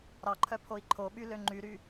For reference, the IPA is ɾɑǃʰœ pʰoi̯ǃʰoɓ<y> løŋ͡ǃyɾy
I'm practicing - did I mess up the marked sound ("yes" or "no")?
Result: no